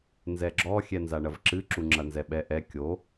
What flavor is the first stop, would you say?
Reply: click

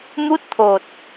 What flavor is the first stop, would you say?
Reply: plain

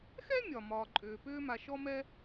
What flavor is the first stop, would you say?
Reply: click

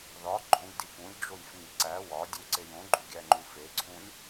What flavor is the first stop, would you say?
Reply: click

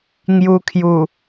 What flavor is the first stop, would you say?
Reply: aspirated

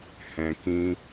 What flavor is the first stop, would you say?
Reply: plain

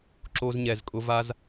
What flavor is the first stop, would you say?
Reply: click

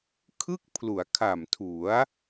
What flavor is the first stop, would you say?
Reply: aspirated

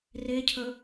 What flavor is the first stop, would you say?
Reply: aspirated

